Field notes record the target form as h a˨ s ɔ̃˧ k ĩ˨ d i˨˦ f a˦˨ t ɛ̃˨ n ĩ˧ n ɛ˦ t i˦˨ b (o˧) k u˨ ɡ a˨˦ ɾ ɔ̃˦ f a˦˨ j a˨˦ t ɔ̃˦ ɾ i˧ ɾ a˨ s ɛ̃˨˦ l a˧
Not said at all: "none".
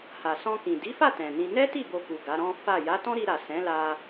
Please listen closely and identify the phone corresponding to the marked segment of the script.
o˧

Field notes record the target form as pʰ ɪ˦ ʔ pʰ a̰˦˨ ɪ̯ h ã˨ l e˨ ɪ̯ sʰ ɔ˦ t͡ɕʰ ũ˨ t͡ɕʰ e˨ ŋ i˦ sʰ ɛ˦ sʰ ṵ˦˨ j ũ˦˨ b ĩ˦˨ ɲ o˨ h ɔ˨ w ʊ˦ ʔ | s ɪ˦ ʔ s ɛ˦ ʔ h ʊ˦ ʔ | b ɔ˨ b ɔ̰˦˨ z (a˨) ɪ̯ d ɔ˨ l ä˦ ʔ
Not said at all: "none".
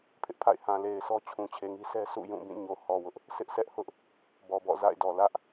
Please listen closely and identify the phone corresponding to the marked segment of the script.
a̰˦˨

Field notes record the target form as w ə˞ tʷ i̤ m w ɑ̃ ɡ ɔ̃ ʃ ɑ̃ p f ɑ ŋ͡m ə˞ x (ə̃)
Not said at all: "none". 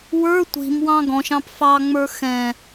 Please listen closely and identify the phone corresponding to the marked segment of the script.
ɛ̃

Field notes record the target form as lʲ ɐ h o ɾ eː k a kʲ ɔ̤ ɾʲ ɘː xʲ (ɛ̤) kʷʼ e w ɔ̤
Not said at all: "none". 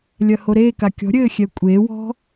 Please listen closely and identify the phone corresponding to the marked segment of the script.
ɛ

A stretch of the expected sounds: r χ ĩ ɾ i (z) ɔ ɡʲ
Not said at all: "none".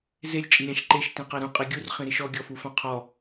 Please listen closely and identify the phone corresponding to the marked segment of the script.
ʃ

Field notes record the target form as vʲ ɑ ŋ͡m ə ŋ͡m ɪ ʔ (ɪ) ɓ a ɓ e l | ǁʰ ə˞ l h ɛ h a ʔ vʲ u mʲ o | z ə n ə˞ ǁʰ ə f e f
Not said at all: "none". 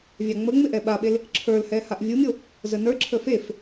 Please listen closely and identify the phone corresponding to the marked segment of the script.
ɛ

